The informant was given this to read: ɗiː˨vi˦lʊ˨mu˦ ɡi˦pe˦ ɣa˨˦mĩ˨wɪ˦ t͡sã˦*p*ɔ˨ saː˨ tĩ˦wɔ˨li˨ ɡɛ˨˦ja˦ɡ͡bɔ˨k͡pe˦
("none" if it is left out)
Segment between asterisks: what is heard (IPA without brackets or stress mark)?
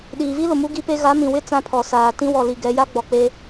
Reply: pʰ